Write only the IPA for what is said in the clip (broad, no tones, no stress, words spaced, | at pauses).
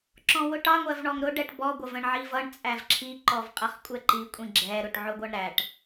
ǁɔ̃wʊʈɑ ŋʷɜvɳɔŋɾʊ ɖɛʈbɔ ɡʷʌvə̃ɳʕivʌɳ t͡sʼævǁʰi ǃɔvqʼʌχkʷʼɛǃi kʷʼĩɡ͡ǁɛ ɾʊʈʕʊɡʷʌɳɾæʈ